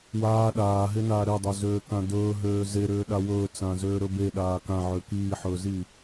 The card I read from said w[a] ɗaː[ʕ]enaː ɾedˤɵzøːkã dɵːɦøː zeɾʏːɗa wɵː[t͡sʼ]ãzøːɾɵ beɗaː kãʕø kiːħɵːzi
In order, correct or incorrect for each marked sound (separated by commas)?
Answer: incorrect, incorrect, incorrect